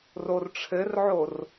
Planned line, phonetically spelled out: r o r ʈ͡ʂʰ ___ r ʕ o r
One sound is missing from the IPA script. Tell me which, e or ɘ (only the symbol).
ɘ